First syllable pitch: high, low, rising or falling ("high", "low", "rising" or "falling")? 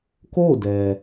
falling